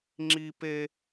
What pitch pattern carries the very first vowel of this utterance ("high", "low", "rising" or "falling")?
high